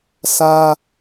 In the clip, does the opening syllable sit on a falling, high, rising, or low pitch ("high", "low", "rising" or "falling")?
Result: high